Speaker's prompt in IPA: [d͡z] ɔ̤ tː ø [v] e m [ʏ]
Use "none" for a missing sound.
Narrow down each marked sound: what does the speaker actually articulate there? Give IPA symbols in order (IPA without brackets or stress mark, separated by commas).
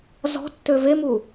z, v, u